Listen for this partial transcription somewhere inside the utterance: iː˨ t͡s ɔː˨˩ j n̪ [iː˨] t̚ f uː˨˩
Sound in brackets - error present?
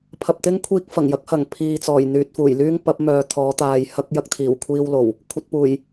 yes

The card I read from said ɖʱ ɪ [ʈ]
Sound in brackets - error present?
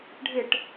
no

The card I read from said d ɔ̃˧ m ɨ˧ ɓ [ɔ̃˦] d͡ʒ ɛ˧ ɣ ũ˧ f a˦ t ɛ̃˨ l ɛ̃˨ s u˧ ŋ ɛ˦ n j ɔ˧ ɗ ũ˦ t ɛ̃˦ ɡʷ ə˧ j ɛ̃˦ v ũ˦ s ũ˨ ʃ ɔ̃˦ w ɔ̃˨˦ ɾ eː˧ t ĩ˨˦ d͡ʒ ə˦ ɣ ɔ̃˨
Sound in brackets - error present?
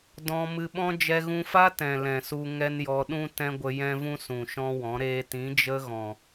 no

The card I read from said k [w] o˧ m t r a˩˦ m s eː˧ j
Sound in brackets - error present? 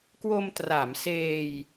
no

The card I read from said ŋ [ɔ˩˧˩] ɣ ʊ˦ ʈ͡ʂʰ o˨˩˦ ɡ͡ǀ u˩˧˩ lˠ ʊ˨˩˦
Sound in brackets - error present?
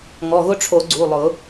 no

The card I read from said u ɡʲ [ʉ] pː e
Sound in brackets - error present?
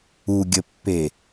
yes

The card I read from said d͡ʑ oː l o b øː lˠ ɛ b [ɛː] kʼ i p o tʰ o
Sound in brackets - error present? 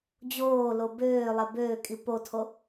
yes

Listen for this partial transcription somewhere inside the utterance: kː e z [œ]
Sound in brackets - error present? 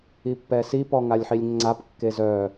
no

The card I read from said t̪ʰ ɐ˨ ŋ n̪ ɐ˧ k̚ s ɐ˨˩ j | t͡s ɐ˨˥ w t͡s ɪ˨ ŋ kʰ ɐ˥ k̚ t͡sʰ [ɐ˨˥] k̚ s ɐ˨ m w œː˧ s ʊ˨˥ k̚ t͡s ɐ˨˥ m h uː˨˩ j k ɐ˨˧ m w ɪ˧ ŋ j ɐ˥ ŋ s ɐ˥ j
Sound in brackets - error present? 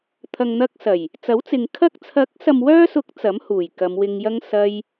no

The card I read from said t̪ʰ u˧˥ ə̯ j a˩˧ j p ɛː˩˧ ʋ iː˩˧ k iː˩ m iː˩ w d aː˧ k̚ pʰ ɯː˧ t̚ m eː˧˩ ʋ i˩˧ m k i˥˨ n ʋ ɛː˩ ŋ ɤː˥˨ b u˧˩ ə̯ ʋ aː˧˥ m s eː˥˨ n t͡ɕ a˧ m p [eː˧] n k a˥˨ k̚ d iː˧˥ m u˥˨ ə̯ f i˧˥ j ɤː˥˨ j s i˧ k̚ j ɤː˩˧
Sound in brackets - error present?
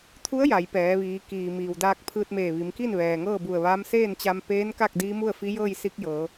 yes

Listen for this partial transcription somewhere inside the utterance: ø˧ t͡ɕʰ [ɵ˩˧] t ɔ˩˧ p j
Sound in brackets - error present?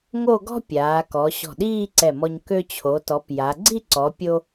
yes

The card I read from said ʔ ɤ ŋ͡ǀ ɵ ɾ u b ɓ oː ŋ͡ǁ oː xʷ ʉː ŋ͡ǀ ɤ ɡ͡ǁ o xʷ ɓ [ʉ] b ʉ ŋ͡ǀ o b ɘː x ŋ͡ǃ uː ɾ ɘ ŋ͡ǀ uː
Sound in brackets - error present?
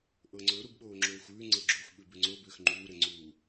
no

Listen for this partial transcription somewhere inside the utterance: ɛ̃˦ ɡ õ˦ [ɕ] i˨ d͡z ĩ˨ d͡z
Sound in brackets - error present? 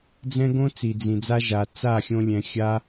yes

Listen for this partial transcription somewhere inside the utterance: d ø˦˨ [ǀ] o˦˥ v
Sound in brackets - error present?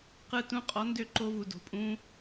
yes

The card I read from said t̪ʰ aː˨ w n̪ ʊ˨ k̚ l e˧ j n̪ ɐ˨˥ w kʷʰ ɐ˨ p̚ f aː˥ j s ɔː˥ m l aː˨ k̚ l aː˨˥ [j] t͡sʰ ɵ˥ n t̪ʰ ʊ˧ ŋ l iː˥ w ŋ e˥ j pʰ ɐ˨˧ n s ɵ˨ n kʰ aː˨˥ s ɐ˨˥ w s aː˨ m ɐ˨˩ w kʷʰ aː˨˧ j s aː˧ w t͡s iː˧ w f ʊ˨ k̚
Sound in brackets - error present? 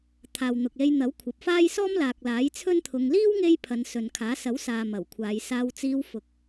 no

